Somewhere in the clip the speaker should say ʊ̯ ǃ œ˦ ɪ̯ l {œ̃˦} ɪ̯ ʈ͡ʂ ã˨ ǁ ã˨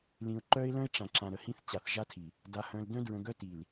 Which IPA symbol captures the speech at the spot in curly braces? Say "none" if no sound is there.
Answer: œ̃˦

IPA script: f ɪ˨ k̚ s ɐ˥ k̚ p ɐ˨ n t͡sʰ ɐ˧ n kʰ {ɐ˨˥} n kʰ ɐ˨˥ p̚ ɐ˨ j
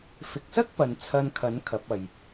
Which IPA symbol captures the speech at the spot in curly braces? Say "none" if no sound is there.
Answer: ɐ˨˥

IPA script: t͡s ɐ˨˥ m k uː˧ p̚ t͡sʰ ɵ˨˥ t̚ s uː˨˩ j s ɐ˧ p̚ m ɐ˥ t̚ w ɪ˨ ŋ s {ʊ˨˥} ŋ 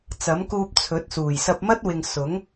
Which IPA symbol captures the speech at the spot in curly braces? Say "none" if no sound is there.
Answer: ʊ˨˥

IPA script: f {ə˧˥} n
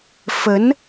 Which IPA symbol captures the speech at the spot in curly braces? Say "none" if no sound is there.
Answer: ə˧˥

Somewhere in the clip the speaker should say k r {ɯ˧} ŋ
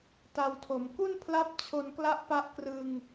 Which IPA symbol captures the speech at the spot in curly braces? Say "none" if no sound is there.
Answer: ɯ˧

